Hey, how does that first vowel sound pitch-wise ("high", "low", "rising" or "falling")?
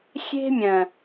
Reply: high